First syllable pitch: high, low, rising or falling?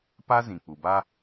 high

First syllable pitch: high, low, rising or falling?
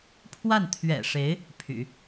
falling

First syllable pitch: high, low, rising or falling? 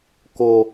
low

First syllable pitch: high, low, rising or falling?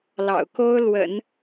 low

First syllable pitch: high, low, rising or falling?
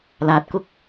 low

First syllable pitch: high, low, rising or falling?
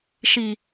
low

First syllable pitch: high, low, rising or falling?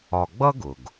low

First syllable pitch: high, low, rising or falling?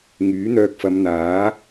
rising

